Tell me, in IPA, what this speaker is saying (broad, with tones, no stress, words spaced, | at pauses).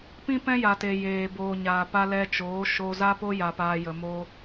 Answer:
pĩ˦pɛ̃˦ja˨te˨ jeː˨ boː˨ɲaː˨pa˦ lɛ˧t͡ʃoː˨˦ʃo˧ za˦po˦ ja˧paː˧ jə˨moː˧